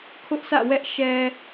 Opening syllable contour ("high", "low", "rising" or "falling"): high